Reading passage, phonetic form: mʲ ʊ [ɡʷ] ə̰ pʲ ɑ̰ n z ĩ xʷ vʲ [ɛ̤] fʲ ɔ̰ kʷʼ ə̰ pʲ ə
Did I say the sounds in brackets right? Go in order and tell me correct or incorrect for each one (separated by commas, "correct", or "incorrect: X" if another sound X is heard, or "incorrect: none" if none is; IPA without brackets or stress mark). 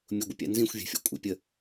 correct, correct